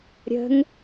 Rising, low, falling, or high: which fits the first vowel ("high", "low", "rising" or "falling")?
rising